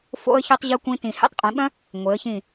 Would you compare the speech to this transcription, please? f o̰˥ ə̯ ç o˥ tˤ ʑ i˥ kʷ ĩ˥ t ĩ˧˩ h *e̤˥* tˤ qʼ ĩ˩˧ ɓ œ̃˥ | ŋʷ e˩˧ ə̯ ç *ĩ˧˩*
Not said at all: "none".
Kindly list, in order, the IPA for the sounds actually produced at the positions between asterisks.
ḛ˥, ĩ˧˩

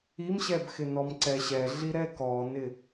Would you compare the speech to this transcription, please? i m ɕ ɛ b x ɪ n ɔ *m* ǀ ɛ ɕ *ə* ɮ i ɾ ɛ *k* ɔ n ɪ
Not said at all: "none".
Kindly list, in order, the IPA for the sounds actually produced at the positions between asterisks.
m, ɛ, k

